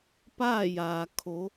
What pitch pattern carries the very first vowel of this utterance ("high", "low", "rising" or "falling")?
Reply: falling